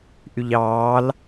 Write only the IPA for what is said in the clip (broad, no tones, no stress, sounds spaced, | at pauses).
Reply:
ʔ y ʎ ɑː l